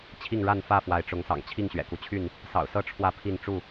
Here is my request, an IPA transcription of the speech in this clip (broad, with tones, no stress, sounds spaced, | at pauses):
t͡ɕʰ i˥˨ ŋ ɻ a˥˨ n f ä˥˨ f w a˨˦ ɪ̯ ʈ͡ʂ ʊ˨˦ ŋ s ɑ̰˨˩ ŋ t͡ɕʰ i˥˨ ŋ ɕ ɥ ɛ̰˨˩ k u˦ t͡ɕʰ y˥˨ n | s ɑ̰˨˩ ʊ̯ s ɤ˦ ʈ͡ʂʰ w ä˥˨ pʰ i˥˨ n ʈ͡ʂ u˥˨